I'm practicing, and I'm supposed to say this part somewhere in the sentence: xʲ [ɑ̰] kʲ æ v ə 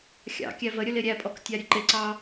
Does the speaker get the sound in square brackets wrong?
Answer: no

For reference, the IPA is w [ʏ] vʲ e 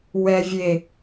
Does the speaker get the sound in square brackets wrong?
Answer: yes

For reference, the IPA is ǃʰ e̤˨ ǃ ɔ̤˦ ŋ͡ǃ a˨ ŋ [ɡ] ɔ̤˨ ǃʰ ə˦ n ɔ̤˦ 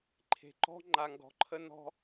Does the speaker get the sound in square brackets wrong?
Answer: no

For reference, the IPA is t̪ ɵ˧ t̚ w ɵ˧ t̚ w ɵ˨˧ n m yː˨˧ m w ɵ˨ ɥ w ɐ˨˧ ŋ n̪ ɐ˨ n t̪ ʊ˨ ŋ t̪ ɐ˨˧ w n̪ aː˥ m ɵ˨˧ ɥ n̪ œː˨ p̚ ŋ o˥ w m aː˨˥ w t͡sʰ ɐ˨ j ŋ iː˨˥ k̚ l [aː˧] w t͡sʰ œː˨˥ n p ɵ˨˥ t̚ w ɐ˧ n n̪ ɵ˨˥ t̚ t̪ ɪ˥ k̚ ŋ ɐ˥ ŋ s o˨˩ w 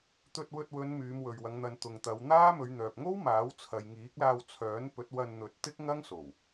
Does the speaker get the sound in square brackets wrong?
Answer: no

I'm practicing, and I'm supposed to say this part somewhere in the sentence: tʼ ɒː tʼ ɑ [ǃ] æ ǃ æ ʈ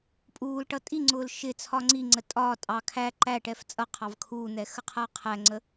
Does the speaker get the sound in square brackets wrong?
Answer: yes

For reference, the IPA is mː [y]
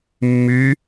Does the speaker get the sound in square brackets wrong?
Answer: no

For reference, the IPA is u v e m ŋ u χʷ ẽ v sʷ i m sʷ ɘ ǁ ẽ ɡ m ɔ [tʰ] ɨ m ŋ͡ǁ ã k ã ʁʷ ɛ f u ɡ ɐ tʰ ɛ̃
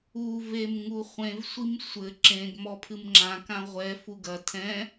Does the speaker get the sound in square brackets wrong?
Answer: yes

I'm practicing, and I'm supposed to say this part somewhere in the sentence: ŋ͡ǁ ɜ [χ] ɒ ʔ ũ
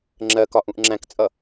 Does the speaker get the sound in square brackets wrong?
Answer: yes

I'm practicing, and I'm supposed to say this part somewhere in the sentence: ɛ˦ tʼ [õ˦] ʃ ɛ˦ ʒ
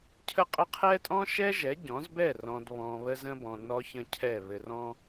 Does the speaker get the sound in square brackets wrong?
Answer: yes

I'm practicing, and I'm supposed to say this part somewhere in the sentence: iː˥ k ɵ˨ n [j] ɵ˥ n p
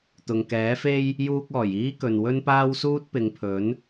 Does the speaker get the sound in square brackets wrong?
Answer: yes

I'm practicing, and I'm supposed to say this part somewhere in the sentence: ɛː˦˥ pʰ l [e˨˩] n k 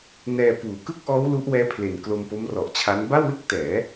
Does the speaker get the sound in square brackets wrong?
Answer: no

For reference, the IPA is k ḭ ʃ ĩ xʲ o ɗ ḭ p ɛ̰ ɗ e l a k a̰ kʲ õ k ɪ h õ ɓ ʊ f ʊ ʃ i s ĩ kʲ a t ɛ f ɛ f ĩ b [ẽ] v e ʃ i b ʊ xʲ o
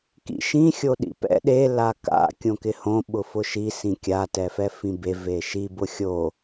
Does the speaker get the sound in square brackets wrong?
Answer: yes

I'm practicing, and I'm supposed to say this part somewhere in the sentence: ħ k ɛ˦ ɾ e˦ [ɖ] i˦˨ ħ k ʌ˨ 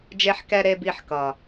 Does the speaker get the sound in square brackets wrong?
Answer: yes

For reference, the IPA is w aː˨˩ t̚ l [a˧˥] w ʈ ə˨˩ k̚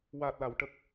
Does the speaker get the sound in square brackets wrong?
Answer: yes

